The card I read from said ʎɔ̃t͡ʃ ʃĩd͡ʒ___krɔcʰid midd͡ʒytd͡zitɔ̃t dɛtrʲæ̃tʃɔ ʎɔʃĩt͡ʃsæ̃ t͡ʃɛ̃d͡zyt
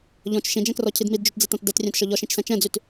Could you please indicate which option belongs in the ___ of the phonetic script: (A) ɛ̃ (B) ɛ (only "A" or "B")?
A